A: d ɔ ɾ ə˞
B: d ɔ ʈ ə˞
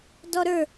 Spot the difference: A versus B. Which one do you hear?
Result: A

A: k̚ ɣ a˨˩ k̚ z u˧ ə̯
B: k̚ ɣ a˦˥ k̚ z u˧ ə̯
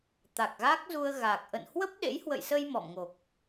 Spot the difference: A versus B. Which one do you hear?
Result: B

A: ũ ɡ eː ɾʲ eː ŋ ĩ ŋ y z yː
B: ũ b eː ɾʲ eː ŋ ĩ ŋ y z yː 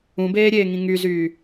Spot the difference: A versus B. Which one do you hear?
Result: B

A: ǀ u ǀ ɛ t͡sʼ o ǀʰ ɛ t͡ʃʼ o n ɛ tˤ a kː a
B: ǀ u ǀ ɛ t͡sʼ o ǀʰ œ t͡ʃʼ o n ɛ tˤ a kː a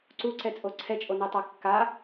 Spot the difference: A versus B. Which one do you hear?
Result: A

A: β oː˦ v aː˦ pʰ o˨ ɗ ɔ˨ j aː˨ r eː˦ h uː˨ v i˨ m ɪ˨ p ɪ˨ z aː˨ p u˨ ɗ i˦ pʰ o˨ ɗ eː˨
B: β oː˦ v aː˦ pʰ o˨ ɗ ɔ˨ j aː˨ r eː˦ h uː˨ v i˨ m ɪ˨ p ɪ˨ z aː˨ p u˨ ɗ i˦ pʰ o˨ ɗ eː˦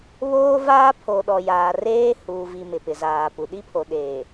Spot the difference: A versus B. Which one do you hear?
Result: A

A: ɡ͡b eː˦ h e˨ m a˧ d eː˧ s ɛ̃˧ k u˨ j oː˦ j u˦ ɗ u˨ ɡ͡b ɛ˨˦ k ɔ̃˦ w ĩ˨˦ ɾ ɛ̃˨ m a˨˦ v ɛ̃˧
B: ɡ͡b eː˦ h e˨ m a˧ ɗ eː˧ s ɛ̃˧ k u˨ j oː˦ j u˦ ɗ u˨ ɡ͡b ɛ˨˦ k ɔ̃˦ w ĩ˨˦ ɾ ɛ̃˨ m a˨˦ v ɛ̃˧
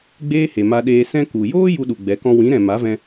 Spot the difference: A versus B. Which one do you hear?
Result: B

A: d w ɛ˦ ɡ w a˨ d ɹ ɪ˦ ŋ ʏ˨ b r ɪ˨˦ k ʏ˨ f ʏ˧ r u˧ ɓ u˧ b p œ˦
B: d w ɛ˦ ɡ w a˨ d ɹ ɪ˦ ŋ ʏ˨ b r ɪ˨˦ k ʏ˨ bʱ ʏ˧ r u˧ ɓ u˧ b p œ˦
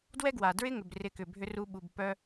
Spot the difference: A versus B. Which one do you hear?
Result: B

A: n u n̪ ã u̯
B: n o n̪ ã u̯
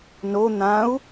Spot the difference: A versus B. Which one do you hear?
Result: B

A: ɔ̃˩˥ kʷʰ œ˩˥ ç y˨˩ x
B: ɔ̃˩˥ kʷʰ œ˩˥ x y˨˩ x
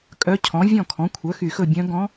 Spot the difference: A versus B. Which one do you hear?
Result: B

